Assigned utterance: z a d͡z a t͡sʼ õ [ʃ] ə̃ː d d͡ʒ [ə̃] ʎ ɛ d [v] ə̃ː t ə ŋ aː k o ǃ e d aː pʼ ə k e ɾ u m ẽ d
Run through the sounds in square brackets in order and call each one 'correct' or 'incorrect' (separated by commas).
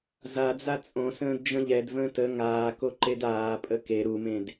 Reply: incorrect, correct, correct